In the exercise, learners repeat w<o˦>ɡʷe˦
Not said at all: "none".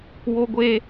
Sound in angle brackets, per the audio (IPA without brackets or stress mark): o˦